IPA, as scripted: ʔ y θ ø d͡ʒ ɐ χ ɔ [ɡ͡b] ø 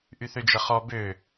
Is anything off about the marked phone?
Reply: yes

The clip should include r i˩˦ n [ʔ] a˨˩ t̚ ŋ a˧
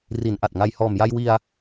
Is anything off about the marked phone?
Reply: no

